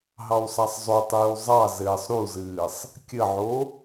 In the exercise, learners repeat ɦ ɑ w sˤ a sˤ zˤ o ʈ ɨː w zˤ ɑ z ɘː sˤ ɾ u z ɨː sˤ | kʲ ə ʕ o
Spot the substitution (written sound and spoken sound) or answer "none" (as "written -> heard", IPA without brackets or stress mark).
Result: ʈ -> tˤ